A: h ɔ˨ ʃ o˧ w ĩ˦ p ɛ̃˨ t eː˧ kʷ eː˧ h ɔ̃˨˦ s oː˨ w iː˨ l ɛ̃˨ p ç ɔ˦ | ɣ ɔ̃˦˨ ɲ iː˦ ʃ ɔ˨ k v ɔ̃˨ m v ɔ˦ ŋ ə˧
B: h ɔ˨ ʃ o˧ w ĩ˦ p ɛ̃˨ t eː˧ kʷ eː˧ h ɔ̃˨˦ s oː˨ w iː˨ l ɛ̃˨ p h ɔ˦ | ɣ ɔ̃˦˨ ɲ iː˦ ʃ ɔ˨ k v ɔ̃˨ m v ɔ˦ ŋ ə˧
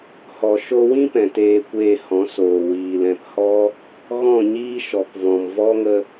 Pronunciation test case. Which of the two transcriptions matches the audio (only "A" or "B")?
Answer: B